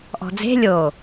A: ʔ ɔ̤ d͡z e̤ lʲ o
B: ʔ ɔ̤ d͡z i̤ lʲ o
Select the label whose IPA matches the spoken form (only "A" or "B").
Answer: A